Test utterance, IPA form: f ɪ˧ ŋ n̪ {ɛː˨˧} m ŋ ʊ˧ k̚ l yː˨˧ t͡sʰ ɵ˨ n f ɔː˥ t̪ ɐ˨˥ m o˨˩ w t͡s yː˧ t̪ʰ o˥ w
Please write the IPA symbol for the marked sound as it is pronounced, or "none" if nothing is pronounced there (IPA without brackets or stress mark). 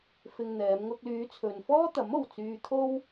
ɛː˨˧